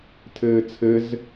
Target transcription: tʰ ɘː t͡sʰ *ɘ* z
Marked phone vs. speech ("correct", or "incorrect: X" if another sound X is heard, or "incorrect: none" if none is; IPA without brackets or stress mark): correct